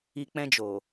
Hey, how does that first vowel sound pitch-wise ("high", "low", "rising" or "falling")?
low